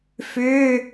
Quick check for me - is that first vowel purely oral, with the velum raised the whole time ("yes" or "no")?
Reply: yes